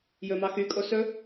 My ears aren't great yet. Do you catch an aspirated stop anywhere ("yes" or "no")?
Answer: no